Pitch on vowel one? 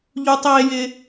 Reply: high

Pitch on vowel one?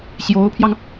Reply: rising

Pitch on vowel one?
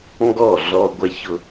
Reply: falling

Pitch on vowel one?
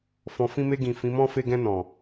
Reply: low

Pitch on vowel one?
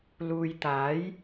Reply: low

